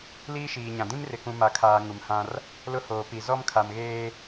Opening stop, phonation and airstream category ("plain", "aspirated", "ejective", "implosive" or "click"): plain